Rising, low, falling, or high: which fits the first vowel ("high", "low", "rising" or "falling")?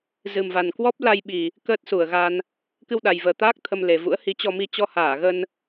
low